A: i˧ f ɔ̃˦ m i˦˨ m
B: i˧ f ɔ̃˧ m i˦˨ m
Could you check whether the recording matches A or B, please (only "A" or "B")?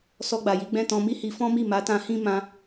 A